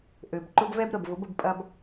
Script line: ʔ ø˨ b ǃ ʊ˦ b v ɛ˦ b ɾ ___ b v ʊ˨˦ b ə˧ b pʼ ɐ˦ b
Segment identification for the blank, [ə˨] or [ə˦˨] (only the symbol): ə˨